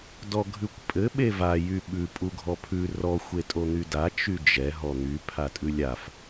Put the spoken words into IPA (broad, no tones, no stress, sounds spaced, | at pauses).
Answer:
d ɔ ɡʱ ʉ kʷ pʼ ɘ ɓ e v a j y ɓ ʉ pʼ u ɡʱ ɔ pʰ ʉ r ɔ xʷ e tʼ o n̪ y d a t͡ʃ y d͡ʒ ɛ ɦ ɔ n̪ y pʰ a tʼ ʉ lʲ a f